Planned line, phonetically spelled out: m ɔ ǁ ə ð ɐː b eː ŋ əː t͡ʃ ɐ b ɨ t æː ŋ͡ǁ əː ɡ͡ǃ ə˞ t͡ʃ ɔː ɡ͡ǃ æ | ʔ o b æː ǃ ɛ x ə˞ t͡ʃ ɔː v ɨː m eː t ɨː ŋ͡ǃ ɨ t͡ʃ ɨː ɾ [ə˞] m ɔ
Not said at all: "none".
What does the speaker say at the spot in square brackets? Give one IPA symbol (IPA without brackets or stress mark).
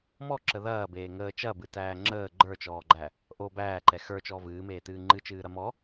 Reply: ɐ